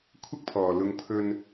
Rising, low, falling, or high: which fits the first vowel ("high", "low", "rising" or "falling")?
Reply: high